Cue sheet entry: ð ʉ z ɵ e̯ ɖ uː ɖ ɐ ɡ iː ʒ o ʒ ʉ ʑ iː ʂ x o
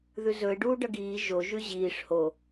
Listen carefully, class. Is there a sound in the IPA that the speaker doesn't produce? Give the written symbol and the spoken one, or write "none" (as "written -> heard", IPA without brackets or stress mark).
x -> h